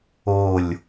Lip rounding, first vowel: rounded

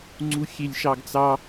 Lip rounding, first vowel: rounded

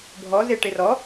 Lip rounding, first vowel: rounded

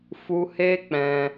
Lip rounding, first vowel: rounded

